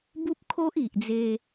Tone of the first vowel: high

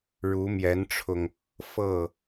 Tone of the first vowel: rising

